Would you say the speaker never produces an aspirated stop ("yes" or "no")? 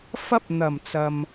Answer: yes